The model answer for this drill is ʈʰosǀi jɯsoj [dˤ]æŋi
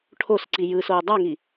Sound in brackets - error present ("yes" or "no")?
no